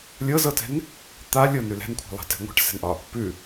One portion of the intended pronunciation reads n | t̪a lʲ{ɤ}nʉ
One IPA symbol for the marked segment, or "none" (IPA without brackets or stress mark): ɤ